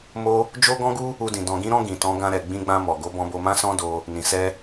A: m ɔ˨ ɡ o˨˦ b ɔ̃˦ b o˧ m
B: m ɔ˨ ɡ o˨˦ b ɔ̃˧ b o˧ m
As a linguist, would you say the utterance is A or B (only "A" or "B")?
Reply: B